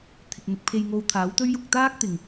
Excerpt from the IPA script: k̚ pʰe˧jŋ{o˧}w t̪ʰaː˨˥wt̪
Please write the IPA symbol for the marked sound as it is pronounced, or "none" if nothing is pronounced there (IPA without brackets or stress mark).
o˧